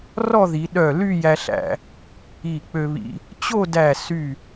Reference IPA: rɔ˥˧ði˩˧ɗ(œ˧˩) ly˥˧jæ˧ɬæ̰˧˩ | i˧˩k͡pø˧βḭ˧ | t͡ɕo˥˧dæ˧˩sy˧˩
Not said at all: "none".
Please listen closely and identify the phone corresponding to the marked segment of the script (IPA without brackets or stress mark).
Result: œ˧˩